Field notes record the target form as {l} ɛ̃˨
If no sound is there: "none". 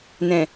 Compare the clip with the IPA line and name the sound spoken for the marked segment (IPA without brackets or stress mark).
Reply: n